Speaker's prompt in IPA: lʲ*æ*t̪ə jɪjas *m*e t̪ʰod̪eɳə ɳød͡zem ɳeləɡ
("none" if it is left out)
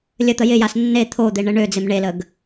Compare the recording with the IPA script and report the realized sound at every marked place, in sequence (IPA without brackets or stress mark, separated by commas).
ə, nː